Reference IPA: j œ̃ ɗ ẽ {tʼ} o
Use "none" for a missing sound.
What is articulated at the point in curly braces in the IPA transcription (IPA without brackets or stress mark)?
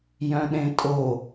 tʼ